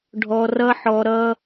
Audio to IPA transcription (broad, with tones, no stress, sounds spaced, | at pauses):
ɖʱ ɔ˧ r ʌ˦ ħ ɔ˧ ɾ ʌ˦